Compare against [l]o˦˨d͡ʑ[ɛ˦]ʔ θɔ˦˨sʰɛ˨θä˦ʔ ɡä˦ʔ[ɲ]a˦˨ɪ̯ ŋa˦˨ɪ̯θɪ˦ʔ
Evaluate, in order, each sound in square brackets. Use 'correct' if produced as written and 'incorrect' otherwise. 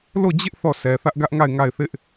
correct, incorrect: ɪ˦, incorrect: ŋ

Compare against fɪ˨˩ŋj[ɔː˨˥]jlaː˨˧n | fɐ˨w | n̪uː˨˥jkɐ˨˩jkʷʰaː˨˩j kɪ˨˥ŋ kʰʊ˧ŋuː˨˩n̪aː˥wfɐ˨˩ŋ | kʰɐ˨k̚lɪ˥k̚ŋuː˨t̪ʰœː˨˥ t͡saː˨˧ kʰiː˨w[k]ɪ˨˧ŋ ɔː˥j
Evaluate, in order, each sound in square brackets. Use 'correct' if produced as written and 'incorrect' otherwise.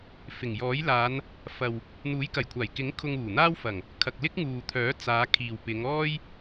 correct, incorrect: p

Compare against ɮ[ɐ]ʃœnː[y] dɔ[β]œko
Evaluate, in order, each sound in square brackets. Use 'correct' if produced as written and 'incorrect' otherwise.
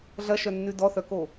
correct, correct, incorrect: θ

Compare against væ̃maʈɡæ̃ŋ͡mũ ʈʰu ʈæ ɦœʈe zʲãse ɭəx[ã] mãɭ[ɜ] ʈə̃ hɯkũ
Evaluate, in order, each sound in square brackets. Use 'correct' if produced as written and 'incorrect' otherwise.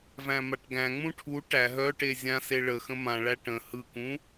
incorrect: ə̃, incorrect: æ

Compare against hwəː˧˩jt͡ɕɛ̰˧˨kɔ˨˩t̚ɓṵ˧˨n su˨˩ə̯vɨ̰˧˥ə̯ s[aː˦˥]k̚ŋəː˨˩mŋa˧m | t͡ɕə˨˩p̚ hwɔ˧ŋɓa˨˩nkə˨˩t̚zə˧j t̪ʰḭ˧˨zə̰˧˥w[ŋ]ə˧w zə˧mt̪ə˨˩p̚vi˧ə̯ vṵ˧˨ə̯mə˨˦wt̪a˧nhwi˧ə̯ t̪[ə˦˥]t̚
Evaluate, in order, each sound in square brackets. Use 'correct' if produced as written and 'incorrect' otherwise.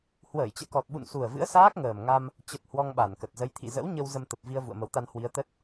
correct, incorrect: ɲ, correct

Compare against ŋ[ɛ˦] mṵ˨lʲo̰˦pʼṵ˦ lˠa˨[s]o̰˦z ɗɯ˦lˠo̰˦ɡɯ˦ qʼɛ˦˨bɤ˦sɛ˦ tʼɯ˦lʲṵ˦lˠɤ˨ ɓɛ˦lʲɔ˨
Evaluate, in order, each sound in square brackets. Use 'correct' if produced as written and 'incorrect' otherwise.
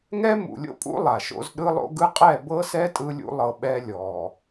correct, incorrect: ʃ

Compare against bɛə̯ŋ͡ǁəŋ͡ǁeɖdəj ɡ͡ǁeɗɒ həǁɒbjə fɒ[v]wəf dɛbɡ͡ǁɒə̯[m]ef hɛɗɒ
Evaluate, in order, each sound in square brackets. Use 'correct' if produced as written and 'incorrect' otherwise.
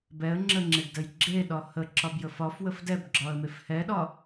incorrect: f, correct

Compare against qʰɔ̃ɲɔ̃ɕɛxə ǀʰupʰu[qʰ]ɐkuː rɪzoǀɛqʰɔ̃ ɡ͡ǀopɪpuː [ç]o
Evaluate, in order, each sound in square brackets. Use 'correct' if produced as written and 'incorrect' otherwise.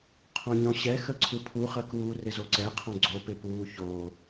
incorrect: χ, correct

